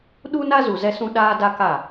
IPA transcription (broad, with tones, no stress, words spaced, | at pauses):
ɗu˦na˦zu˨ zɛ˦sũ˦ ɗaː˦da˦ka˦˨